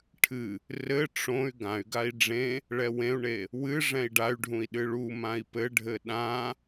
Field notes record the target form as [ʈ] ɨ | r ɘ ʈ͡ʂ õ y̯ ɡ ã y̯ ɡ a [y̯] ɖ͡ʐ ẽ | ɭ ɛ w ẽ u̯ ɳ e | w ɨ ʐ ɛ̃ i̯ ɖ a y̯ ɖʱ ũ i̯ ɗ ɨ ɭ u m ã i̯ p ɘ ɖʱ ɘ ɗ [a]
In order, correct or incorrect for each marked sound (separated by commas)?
incorrect, incorrect, incorrect